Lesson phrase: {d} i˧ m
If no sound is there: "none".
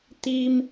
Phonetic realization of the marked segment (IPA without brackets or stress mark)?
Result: t̪